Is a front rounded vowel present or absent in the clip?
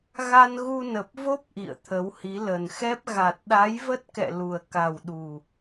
absent